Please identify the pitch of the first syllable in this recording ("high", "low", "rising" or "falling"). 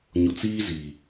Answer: low